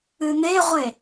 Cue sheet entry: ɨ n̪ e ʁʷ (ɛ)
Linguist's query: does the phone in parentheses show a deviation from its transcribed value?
yes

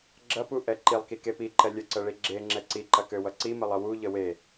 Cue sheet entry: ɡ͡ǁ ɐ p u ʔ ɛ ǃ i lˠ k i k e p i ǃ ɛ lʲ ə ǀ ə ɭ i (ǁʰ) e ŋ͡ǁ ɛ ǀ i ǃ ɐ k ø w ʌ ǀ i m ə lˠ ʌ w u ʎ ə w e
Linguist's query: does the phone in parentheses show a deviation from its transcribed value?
yes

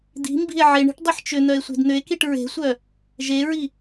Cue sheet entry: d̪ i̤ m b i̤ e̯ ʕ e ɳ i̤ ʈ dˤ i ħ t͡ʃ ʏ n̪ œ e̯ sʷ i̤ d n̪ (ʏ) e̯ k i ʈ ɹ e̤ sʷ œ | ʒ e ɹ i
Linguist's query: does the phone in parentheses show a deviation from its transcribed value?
no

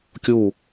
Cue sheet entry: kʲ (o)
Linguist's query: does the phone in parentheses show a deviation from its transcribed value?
yes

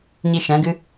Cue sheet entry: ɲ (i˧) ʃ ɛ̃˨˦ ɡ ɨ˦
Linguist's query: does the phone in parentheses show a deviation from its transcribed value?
no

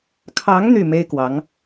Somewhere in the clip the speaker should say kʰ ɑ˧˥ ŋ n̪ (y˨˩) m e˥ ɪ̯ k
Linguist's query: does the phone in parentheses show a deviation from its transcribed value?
yes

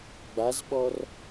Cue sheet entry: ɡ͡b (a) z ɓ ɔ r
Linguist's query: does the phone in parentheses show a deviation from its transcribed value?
no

